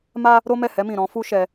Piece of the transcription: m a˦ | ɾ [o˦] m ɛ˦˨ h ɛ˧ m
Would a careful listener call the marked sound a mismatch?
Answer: no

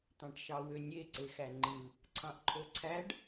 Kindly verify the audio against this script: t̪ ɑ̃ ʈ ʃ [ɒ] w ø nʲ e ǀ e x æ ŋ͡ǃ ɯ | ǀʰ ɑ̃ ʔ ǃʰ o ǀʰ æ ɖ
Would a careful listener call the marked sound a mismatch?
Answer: yes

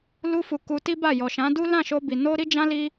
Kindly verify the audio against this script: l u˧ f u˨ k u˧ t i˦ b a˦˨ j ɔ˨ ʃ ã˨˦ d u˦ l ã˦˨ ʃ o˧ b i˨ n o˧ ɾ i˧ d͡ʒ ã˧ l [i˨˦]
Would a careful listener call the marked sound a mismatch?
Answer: yes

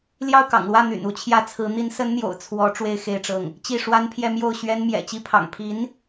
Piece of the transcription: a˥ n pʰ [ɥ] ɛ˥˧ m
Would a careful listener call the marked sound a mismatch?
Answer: yes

